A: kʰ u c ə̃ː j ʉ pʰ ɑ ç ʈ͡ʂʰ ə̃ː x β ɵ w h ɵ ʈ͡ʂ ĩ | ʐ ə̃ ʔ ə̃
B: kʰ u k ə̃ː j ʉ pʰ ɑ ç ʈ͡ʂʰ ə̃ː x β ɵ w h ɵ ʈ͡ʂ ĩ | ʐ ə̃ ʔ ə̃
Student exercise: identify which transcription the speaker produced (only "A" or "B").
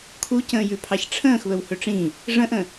A